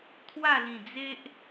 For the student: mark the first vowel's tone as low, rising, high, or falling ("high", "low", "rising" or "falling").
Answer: falling